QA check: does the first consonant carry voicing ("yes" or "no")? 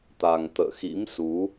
no